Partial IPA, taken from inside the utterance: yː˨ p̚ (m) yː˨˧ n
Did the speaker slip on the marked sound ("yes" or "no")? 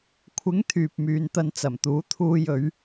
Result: no